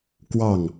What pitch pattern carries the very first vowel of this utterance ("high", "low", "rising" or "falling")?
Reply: falling